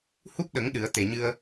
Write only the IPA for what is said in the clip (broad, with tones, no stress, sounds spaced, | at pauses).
h u˦˥ p̚ ɗ ə˨˩˦ ŋ ɗ ɨ˨˩˦ ə̯ t̪ e˨˩ ɲ ɨ˧ ə̯